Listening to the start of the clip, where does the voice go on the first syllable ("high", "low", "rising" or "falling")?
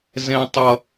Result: high